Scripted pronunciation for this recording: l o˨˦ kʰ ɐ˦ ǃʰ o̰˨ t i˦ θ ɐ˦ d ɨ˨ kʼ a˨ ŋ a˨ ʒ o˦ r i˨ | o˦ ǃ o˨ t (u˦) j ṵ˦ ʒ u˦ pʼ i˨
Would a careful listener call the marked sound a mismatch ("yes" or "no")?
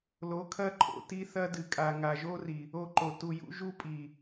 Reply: yes